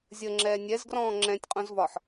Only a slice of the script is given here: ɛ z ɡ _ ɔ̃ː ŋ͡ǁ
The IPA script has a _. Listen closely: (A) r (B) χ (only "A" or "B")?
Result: A